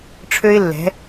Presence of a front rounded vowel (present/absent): present